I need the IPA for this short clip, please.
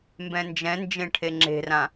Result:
m b ɛ̃ n d͡ʒ ɛ̃ n d͡ʒ ẽ ʈʰ e ŋ͡ǁ e̤ r ã

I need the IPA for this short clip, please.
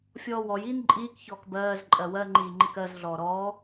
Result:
fʲ ɔː w ɔ j iː n ǃʼ iː k ç ɔː k b ɜː z ǃʼ ɜ w ɜ ŋ͡ǃ iː ŋ͡ǃ i k ɜ z ɮ ɔː ɾ ɔː

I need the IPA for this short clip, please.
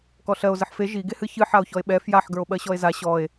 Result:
k ɔ ɬ ɜ o̯ z ə ħ f e ʒ i ɡ e h ɨ ç ɨ ħ a o̯ ç ɔ e̯ ɓ ɛ f j a ħ ɡ ə˞ o̯ ɓ ɜ ɕ ɔ e̯ z a ɕ ɔ e̯

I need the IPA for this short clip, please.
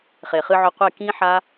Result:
χ e˨ χ ɨ˧ ʕ ɵ˧ qʷ e˦˨ k ĩ˦ ħ a˦

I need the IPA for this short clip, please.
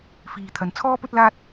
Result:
f iː˨ t̪ʰ ɐ˨ n t͡sʰ ɔː˥ p ɵ˥ t̚ l aː˥ t̚

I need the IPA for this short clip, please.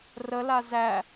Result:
r ə l a z æ

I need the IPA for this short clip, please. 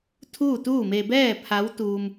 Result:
t̪ʰ uː˥˨ t̪ uː˥˨ m e˧ b ɛː˥˨ pʰ a˧˥ w t̪ uː˧ m

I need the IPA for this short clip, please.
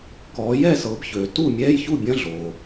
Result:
k ɔ˨˦ j ɛ˥˩ s ɤ˨˦ b ç ø˨ t u˥˩ mʲ ɛ˧˥˧ j ç u˥˩ bʲ ɐ̃˧˥˧ ɮ o˨

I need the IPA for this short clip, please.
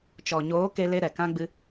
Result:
t͡ʃ ɔ˨ ɲ oː˨˦ k e˧ l e˧ ɾ ɛ˨ k ã˦ ɡ͡b ɨ˦

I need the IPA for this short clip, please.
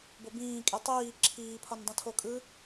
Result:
b o b ĩː kʼ i tˤ iː ǁʰ iː pʰ ɒ n dˤ õ tʰ o kʼ ɯ

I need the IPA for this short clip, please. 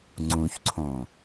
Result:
ŋ͡ǀ ũ ç ǀʰ õ

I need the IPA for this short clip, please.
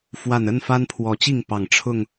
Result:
f w a˨˩ n ə˥˨ n f a˦ n pʰ w ɔ˨˦ t͡ɕ i˥˨ ŋ p ɑ˨˩ ŋ ʈ͡ʂʰ ʊ˥˨ ŋ

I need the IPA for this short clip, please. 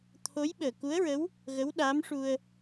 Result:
t̪ʰ o˧˥ j ɓ əː˨˩ k u˧˥ ə̯ ɹ ə˧˥ w | ɣ ə˧˥ w ɗ aː˧˥ m ʂ u˧ ə̯

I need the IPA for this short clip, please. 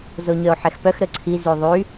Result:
z o ɲ œ o̯ ħ ɛ x p œ x ɾ ə ǀʰ i z y ðˤ y

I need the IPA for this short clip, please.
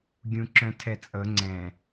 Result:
ɡʲ ũ ǁ œ̃ tʰ ɛ t͡sʼ ɤ ŋ͡ǀ ɛ̃

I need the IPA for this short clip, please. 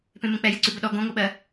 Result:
p ẽ m ẽ k͡p ɛ j ə ǀ ʉ b ə ɗ ɔ ɡ õ ŋ o ɓ ɜ

